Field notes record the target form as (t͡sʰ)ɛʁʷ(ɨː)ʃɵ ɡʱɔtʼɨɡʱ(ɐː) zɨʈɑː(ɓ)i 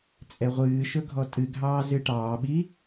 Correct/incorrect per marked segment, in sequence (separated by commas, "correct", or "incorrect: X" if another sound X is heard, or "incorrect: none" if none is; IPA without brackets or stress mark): incorrect: t͡sʼ, correct, incorrect: ɑː, correct